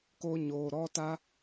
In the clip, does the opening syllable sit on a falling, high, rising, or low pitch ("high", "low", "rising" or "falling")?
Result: high